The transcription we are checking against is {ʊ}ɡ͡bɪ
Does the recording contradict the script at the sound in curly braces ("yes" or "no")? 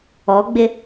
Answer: yes